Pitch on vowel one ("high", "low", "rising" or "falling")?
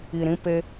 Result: low